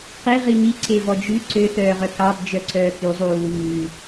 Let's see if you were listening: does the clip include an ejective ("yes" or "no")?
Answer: no